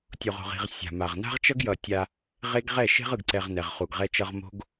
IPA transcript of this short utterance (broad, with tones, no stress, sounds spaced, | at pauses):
tʲ o˨ ʁ o̤˨ ʁ i̤˨ ʁ sʲ a̤˨ m a˨ ʁ n a̤˦ ʁ t͡ʃ ʌ˦ ɡ j ʌ˨ tʲ a˦ | ʁ e˦ ɡ ʁ ɛ˦˨ ʃ e̤˦ ʁ ɯ˨ ɡ ǀ ɛ˨ ʁ n ɛ˨ ʁ χ u˨ ɡ ʁ ɛ˦ t͡ʃ ʌ˦ ʁ m o̤˦ ɡ